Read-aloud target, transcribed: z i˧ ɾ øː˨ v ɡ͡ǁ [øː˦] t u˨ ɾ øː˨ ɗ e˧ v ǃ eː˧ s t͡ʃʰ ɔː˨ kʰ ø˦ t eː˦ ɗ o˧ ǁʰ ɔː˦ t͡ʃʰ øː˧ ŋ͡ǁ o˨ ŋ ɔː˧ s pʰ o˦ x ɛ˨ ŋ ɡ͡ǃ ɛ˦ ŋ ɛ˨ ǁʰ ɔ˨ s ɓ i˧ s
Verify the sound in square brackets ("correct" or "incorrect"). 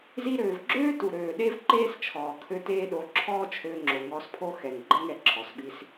correct